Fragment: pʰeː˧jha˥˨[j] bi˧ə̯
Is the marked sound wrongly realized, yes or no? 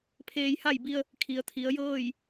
no